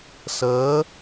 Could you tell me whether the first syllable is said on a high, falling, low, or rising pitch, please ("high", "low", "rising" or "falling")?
rising